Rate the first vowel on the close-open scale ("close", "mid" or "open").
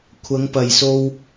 open